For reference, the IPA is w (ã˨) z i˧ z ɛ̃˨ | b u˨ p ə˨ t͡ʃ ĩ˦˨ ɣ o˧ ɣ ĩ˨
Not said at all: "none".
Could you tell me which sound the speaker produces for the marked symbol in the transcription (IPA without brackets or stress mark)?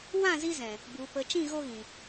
ã˦˨